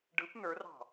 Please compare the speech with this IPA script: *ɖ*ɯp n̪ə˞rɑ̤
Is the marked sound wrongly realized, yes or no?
no